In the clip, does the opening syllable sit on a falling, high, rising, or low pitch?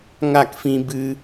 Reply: falling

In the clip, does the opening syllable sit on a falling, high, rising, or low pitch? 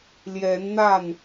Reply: rising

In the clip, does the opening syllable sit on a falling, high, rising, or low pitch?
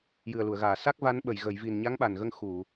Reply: low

